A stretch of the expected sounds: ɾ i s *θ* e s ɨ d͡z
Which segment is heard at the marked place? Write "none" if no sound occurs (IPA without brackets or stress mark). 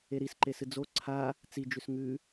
ǃ